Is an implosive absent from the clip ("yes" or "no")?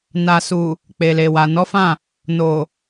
yes